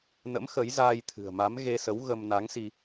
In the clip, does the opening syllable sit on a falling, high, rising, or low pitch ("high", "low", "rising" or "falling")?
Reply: rising